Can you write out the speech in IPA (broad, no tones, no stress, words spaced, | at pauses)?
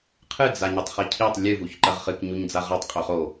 qʰɨd͡za ɲɨtˤχicʰitˤ lʲɨvuç ǃɐʁχɨk ɲuɲd͡zaʁatˤqʼo χo